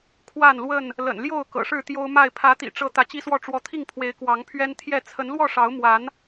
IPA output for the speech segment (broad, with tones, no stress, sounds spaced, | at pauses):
kʰ w a˥˨ n l w ə˥˨ n | l ə̰˨˩ n l j o˥˨ ʊ̯ k ɤ̰˨˩ ʂ ɻ̩˥˨ t̪ j o˦ ʊ̯ m a˥˨ ɪ̯ pʰ ä˨˦ t̪ ḭ˨˩ ʈ͡ʂ ɤ˨˦ t̪ ä˨˦ t͡ɕ i˦ s w ɔ˥˨ ʈ͡ʂ w ɔ˨˦ t̪ʰ i˥˨ ŋ pʰ w e˨˦ ɪ̯ k w ɑ˨˦ ŋ pʰ ɥ ɛ˦ n t̪ʰ j ɛ˥˨ t͡sʰ ə˨˦ n l w ɔ˥˨ ʂ ɑ˨˦ ʊ̯ m w a˨˦ n